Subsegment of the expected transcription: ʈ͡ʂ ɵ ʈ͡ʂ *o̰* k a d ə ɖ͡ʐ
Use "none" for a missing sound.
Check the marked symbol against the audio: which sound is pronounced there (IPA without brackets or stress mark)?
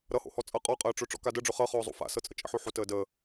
ɔ̰